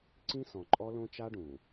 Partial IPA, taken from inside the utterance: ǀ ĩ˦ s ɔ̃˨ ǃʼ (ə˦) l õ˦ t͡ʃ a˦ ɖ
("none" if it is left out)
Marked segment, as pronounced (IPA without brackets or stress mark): ɔ˦